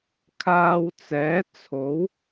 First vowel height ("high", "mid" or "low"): low